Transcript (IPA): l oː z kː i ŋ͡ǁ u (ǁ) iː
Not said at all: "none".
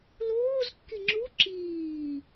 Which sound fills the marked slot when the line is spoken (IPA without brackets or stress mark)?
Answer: ǁ